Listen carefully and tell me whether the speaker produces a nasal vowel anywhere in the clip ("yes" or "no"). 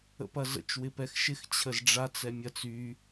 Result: no